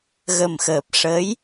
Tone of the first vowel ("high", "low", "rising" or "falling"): low